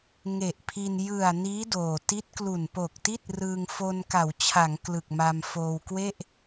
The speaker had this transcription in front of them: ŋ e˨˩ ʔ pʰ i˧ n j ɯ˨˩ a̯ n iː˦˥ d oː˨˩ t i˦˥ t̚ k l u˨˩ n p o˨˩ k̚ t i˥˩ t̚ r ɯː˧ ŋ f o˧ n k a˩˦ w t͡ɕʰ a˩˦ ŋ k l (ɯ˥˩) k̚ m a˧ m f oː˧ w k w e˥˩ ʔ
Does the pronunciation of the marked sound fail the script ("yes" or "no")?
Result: yes